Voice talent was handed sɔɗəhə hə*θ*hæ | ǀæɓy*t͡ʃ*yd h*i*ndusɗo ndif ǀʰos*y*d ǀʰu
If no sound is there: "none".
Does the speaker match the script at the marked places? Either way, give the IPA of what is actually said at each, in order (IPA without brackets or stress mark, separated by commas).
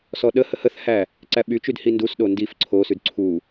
θ, t͡ʃ, i, y